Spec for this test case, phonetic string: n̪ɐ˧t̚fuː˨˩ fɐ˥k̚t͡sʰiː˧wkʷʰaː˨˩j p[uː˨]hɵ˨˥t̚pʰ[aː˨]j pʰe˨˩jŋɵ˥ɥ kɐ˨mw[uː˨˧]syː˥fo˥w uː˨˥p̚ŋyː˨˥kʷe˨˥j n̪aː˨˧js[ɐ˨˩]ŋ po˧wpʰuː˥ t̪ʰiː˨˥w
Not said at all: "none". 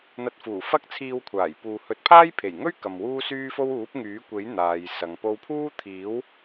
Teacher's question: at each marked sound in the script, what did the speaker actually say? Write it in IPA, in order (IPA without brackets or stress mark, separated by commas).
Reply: uː˨, aː˥, uː˥, ɐ˨˧